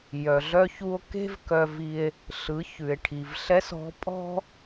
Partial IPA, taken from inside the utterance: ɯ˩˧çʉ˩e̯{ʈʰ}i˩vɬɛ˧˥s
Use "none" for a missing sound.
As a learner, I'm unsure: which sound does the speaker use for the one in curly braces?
ʈʰ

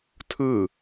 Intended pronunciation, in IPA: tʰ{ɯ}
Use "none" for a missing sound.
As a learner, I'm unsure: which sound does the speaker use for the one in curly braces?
ɯ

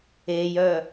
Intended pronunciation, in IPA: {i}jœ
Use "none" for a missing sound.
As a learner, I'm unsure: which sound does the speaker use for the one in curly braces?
e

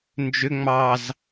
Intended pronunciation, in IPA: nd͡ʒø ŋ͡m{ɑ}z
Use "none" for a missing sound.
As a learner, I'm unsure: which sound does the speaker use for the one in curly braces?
ɑ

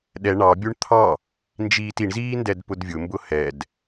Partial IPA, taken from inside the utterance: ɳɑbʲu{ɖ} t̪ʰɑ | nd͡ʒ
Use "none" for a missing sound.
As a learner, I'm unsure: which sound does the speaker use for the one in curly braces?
ɳ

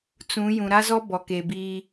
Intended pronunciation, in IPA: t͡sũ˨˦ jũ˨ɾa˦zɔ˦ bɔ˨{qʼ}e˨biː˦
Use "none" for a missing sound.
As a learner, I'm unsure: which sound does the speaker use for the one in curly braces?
k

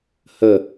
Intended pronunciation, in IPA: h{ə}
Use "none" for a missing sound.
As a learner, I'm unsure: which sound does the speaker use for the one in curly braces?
ə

